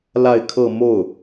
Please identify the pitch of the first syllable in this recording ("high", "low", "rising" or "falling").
falling